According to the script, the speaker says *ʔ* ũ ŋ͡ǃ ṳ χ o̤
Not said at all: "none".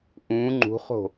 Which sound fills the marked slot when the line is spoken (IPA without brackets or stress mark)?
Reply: ʔ